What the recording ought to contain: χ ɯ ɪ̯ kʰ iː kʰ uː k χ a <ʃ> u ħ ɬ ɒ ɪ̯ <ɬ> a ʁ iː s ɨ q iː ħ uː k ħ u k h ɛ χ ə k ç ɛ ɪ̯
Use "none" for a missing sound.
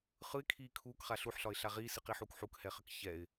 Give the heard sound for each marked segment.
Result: ɬ, ɬ

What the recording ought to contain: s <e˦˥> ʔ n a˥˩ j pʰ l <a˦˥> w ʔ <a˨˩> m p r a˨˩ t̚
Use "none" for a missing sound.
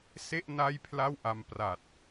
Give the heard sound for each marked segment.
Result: e˥˩, a˥˩, a˧

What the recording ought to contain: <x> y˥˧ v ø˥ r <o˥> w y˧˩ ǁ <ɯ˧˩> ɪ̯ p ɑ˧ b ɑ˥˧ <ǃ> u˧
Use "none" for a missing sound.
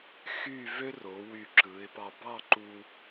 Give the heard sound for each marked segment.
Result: x, o˩˧, ɯ˩˧, ǃ

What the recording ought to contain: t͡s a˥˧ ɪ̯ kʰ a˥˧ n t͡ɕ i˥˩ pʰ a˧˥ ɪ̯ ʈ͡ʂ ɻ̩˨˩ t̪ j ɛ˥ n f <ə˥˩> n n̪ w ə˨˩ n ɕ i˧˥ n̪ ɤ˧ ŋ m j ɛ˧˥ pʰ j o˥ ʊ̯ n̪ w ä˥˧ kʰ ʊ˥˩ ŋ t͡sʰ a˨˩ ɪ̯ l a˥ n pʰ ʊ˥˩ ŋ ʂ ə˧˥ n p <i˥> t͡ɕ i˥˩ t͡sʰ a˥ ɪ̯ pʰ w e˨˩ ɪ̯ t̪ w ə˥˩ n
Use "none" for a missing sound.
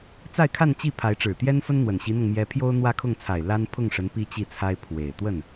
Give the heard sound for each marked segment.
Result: ə˥, i˥

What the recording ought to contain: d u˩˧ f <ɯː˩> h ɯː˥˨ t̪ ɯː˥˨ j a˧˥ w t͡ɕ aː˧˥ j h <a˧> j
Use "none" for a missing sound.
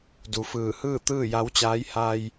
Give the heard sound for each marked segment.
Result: ɯː˧˩, a˧

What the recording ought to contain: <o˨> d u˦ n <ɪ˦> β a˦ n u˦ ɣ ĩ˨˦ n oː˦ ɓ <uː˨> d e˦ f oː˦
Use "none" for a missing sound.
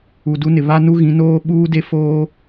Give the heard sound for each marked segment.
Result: u˨, ɪ˨, uː˦

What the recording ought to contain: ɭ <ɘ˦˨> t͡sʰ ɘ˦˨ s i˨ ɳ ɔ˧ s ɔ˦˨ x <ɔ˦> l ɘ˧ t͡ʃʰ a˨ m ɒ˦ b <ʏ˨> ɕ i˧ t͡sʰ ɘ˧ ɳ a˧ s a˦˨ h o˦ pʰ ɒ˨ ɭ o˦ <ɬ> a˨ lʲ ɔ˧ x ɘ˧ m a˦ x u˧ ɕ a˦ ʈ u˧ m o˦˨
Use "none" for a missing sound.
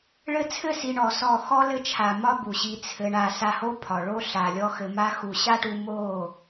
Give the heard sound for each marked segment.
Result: ɘ˧, ɔ˦, u˨, ɬ

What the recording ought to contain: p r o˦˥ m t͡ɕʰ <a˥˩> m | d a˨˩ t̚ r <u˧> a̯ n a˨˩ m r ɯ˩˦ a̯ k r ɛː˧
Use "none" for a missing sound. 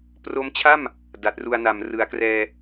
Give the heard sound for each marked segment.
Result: a˥˩, u˧

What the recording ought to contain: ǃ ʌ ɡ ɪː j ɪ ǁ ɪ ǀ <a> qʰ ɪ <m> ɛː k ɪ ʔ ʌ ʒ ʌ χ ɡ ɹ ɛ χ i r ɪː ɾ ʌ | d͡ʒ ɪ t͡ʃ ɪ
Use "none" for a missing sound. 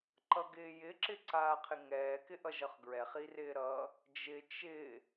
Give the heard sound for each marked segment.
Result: aː, ŋ

